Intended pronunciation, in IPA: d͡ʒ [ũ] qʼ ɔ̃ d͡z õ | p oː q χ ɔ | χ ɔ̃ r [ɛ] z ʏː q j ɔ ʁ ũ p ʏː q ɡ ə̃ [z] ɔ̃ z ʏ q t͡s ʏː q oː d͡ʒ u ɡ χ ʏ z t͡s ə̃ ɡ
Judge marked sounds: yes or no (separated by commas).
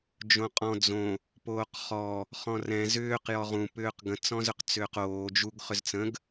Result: no, no, no